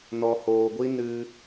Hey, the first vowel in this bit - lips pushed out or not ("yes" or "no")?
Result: yes